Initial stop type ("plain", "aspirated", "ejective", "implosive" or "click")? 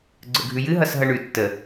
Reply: click